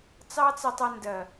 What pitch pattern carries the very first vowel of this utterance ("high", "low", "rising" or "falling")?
high